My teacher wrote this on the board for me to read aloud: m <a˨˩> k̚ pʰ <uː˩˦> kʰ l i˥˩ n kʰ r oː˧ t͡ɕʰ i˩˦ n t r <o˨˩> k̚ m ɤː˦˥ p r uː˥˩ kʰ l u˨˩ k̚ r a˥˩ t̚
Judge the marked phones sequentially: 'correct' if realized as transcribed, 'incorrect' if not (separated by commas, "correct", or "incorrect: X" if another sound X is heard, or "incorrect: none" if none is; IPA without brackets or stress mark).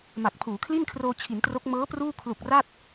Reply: correct, correct, incorrect: o˦˥